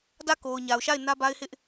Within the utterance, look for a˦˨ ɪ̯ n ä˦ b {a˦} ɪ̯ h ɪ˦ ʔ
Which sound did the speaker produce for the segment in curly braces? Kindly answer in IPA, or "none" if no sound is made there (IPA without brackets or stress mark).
a˦